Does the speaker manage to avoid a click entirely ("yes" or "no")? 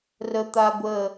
yes